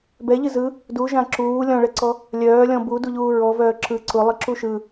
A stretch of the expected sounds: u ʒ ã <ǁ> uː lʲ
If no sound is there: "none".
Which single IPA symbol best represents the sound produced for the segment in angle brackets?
ǁ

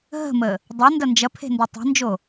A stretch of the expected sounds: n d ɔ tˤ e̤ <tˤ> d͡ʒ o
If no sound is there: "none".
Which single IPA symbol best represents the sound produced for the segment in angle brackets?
n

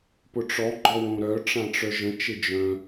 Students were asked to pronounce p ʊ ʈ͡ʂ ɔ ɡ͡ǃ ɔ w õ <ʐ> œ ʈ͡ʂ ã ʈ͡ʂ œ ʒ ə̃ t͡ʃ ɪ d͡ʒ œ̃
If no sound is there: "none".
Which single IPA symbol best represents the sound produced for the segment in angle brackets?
ɾ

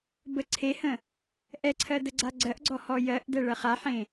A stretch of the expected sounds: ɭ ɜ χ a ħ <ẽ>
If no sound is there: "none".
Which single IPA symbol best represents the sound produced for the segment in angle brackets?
ẽ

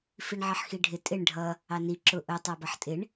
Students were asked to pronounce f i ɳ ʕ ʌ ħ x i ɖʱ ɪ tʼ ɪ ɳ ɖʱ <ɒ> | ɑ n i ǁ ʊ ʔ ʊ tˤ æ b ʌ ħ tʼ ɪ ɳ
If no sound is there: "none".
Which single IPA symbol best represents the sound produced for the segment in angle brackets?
ʌ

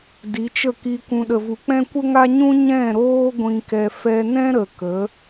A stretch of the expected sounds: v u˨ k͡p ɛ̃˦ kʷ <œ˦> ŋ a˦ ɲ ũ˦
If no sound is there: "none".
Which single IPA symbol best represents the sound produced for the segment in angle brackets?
ə˦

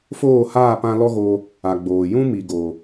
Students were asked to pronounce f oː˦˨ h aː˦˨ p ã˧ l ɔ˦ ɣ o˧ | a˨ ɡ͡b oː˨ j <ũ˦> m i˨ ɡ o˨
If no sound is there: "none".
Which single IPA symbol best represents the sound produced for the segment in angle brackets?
ũ˦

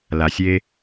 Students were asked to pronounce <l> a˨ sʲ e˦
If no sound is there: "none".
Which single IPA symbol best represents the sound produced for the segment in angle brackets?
l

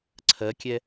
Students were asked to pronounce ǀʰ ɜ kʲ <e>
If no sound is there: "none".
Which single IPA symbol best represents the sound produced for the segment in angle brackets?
ɛ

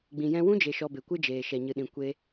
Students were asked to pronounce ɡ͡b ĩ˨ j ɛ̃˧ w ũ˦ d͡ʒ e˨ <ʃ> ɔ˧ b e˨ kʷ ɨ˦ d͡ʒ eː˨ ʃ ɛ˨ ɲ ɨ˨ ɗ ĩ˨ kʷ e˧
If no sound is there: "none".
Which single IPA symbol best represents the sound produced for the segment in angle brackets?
ʃ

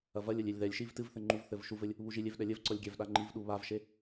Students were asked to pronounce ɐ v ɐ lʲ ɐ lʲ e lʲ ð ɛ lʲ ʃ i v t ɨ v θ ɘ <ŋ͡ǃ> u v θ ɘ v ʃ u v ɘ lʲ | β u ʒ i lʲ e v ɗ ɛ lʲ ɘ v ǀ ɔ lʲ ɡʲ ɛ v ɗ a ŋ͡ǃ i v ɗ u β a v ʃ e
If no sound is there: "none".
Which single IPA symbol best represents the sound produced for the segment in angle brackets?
ŋ͡ǃ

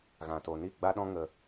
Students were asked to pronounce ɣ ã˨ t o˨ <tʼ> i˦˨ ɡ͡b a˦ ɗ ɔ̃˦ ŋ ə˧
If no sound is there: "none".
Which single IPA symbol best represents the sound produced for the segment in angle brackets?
n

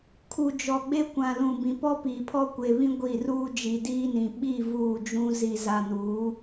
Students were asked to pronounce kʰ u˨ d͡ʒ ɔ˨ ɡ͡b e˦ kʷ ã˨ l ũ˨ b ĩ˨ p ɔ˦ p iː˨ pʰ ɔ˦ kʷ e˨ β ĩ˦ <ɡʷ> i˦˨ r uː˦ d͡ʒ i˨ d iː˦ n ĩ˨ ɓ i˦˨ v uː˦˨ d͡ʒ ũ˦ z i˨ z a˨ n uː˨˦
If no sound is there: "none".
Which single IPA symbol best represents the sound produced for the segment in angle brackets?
ɡʷ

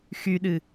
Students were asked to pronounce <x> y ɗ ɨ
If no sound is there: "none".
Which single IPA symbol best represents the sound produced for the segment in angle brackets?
x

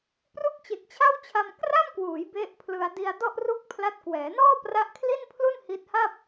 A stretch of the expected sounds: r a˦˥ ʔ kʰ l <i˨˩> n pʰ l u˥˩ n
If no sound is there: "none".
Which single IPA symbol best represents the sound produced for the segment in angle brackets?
i˥˩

